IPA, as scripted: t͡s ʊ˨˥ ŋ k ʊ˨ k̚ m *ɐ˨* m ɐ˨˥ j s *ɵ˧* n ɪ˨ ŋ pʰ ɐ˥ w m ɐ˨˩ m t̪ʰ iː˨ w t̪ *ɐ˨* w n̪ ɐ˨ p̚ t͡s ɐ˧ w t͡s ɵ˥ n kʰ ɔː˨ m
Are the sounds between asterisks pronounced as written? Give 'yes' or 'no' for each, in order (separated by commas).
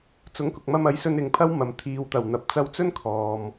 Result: no, yes, no